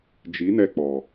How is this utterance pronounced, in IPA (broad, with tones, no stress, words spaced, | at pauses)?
d͡ʒi˨˦nɛ˧k͡pɔ˨